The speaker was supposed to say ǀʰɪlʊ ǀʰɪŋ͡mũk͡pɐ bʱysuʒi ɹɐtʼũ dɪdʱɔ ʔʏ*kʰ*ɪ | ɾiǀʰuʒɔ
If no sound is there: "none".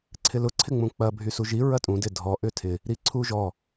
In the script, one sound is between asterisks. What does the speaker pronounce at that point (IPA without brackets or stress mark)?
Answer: tʰ